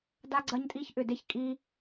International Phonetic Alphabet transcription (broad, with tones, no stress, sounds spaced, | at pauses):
d a˦ ɡ͡ǀ ɐ˦ ɲ tʼ i˦ ç ʔ ʏ˦˨ d e˦ ç kʼ i˦